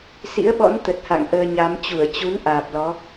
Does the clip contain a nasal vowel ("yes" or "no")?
no